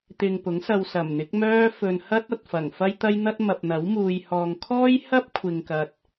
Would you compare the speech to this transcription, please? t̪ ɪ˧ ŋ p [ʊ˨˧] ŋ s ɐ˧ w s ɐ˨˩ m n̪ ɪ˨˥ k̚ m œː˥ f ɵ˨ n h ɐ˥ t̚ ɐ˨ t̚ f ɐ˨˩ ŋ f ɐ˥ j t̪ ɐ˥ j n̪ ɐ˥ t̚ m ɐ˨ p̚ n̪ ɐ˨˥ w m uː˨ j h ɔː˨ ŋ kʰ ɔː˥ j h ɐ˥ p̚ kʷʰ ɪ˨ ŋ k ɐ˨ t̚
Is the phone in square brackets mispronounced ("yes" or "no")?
yes